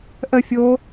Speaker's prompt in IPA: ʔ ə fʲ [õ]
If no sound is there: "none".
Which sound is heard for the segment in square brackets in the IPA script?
o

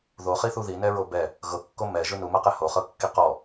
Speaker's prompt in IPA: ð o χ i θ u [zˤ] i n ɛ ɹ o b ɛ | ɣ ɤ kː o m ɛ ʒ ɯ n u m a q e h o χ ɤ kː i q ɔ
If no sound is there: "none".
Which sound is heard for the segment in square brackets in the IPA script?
ð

